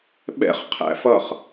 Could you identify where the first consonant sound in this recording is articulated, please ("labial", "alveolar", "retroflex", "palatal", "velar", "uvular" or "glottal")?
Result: labial